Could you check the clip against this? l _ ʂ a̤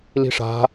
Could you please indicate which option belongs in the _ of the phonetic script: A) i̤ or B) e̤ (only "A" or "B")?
A